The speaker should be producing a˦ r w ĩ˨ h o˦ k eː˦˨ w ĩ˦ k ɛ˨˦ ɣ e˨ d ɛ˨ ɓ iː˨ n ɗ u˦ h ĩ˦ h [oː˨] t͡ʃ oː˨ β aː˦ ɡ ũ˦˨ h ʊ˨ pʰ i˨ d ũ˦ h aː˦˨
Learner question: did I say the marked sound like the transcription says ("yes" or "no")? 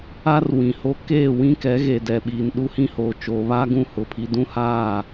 yes